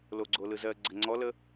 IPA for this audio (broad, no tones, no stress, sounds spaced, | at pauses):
l o ɡ͡ǀ o l ɯ z ɜ ɡ͡ǀ ə ŋ͡ǀ ɔ l ə